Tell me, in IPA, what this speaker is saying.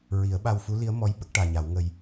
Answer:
ɹi˨˩˦ə̯ ɓa˧wfu˧˥li˧˥ə̯mɔ˧˥j ɓə˦˥k̚ʈaː˨˩ɲa˨˩˦wŋə˧j

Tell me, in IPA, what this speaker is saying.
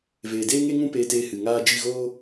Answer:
veː˨deː˦ŋe˦ŋũ˦ peː˧teː˧ hɨ˨ŋaː˦ d͡ʒi˦˨ɣoː˦

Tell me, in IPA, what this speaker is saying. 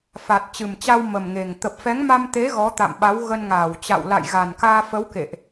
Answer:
fa˨˩t̚t͡ɕɨ˨˩mt͡ɕa˧w mə˨˩mŋe˨˩ŋ t̪ə˨˩p̚fɛ˨˦ŋma˧mt̪e˨˦ ɣɔ˨˦t̪a̰˧˨mɓa˨˦w ɣə˧nŋaː˧˩wt͡ɕa̰˧˨w la̰˧˨jɣa˨˩nkaː˧fə˨˦w kḛ˧˨ʔ

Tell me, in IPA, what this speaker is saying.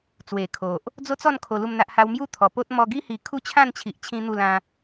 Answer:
t͡swe˨˩kʰo˨ʔ | d͡zo˦t͡sɔ˥˧n kʰo˧lu˥˧mn̪a˦ʔha˦w mju˦t̪ʰɔ˨˩po˦t̚ mɔ˧ɡi˦hi˨˩ kʰu˦t͡ɕʰã˥˧nt͡ɕʰi˨ʔ t͡ɕʰĩ˦n̪u˥˧lã˦

